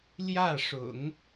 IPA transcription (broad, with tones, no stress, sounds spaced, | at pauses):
l j ä˥˩ ʂ ʊ̰˨˩˦ ŋ